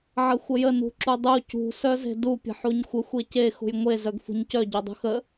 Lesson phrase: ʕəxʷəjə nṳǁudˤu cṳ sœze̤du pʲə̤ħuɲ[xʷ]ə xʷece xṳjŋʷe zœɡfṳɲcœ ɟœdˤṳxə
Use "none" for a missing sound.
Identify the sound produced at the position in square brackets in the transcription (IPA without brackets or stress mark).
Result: xʷ